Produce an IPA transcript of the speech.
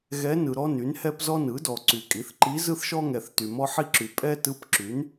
ɣ ɛ˧˥ n ɯ˨ ɾ ɔ˥ n y˩˥ n h ɛ˥ p z ɔ˥ n ɯ˩˥ d ɔ˨ ǀ y˨ kʼ i˩˥ θ ǃ i˧˥ z ɯ˥ θ ʃ ɔ˥ ŋ ɛ˨ θ t y˨ m ɔ˥ ħ i˥ ǁ y˨ pʼ ɛ˥ t ɯ˧˥ p ǁ y˩˥ n

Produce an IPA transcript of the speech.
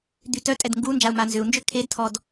d̪ y t œ tʼ ɛ d ŋ ɡ u n d͡ʒ a u̯ m a n z ʏ u̯ n d͡ʒ ø kʰ e d tʰ ɔ d

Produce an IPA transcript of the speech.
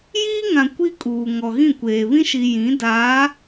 j iː˦ ŋ ã˨ kʷ i˦ kʼ uː˨ ŋ ɔ˨ ɣ ĩ˦˨ kʷ eː˨ β ĩ˦ ʃ i˨ j ĩ˨˦ d aː˨˦

